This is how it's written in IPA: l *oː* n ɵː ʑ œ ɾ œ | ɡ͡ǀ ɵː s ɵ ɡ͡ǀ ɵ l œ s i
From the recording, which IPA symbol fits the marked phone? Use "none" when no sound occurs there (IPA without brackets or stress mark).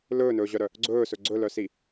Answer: ɵː